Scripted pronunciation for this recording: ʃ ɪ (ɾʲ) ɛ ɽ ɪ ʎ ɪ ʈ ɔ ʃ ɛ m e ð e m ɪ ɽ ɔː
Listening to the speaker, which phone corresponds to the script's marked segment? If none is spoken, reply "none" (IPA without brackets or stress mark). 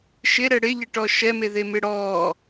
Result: ɾ